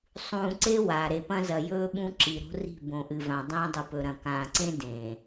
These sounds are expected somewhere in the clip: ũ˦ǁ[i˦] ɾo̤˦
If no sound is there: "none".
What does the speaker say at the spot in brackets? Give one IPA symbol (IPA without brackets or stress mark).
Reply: i˨